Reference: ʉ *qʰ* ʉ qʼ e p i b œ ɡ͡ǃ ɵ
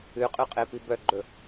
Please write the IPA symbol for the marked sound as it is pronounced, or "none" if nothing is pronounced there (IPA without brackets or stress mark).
qʼ